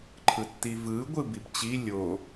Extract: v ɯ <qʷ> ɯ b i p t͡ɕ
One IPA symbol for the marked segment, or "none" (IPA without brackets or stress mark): ɡʷ